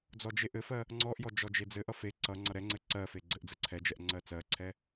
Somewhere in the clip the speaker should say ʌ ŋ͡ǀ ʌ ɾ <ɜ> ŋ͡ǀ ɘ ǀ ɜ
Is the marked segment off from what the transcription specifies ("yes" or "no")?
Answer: yes